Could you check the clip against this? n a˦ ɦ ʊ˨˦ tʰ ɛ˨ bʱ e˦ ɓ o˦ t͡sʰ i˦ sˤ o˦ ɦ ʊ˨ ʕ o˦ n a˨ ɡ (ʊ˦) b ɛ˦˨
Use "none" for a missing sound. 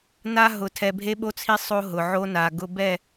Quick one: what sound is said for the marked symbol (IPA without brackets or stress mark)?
ʊ˦